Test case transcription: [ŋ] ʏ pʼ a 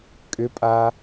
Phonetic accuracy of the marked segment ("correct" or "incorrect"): incorrect